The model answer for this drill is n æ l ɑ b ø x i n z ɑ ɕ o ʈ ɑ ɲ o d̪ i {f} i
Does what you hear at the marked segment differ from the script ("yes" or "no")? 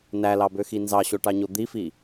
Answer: no